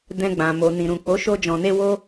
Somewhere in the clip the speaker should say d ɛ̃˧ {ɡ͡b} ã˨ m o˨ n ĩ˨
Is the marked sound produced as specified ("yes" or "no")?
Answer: yes